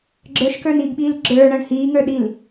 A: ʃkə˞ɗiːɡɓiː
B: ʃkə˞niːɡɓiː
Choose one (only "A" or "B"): B